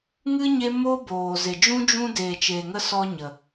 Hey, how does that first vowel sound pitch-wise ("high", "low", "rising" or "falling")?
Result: high